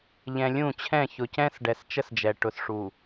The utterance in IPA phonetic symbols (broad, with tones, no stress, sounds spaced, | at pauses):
ʎ ɛ̃˨ lʲ ũ˦˨ t͡ɕʰ ɛ̃˦˨ ç ʊ˨ c ɛ̃˦ s ɖ ɛ˨ s t͡ʃ ə˦ s d͡ʒ ɛ˨ ʈ ʊ˨ s ʂ u˨